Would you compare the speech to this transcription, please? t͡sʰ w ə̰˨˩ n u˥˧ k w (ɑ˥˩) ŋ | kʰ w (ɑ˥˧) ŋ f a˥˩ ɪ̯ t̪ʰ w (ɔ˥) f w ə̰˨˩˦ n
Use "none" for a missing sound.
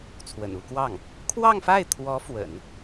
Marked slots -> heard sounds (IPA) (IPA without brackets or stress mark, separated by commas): ɑ˥˩, ɑ˥˧, ɔ˧˥